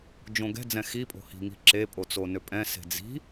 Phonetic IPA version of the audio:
d͡ʒ õ ɡ ɛ̤ d͡z ɛ̃ x i pʼ o̤ h i̤ ŋ i̤ ǁ e pʼ o t͡s o n ø pʼ ɛ̃ s e̤ d͡z i̤

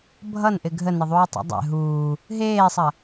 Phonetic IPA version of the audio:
bʱ ʌ n ʔ ɪ ɡʱ ə n ɪ ðˤ uː tˤ ɛ̰ dˤ ɛ̰ ɦ uː | ɦ eː sˤ ɐ

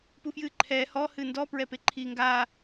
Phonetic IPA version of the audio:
p u f j ɨː ǃʰ ɛː h ɔ h ɨ n d ɔ p ɹ ɛ p e ǃʰ iː ŋ ɡ a

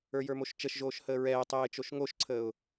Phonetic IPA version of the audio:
ə˞ j ə˞ m o ʃ t͡ʃ ə ʃ ʒ oː ʃ h əː ɹ ɛː tˤ ɛː ɪ̯ t͡ʃ o ʃ ŋ o ʃ ǀʰ əː ʊ̯

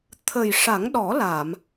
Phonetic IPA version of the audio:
t̪ʰ ə˨˩ j ʂ a˨˩˦ ŋ ɗ ɔ˨˩˦ l a˨˩˨ m

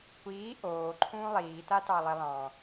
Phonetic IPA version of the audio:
kʷ iː ʔ oː ǃʰ ũː lˠ iː t a t ɑ lˠ i lˠ ɑ̃

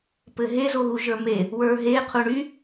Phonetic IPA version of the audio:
p ɘ ɦ e z o ɣ u ʒ ə˞ m e | w ə˞ ɦ e qʰ u ɳ y

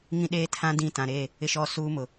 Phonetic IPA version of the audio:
ŋ ĩ˦ ɗ eː˦ tʰ ã˦ d ĩ˦˨ t ã˨ ɾ e˦˨ | ɪ˦ ʃ ɔ˦˨ s uː˦ m ʊ˨

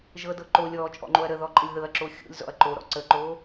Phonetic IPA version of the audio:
ʒ ɤ d ɤ ǃ o lʲ ɔː t͡ʃʼ ɔ̰ ŋ͡ǃ o ɐ̯ ɾ ə ð ɔ ǃʼ ə lʲ ð ɤ ɐ̯ ǁ o xʲ o̰ lʲ z ɔ̰ ɐ̯ ǃ o ɾ ɔ̰ ǀ ə ǃ oː

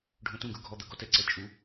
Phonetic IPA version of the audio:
ɖʱ õ t ũ ɡ ɵ ɡʱ ɔ d̪ ɐ ɡ ɔ t ɛ ǀ ɛ t͡ʃʼ u

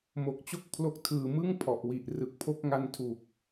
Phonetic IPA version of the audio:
m o˨˩ k̚ t͡ɕ o˥˩ k̚ pʰ l o˦˥ k̚ tʰ ɯː˨˩ m ɯ˥˩ ŋ pʰ ɔ˨˩ ʔ w i˨˩ ʔ r ɯ˨˩ k̚ pʰ o˦˥ k̚ ŋ a˦˥ n tʰ u˨˩ k̚

